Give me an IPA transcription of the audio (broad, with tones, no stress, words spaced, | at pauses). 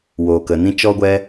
woː˨kə˨nĩ˦ t͡ʃɔ˦ɡʷɛ˦